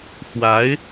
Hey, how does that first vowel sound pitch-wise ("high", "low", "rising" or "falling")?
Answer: rising